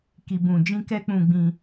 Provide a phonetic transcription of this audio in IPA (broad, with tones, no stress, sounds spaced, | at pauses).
k i˧ b ũ˧ d͡ʒ ĩ˦ k ɛ˦ k͡p ũ˧ ɡ͡b ĩ˧